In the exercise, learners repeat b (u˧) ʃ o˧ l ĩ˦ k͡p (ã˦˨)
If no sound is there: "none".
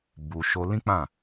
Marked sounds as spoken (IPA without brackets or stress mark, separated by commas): u˧, ã˦˨